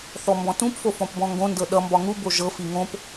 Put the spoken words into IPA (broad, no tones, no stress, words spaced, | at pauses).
θɔmbɔ̃tũpfo fɔ̃pbɔ̃ŋɡõndɤ ɗʌmbɒ ŋubo ʒɤfi ŋõp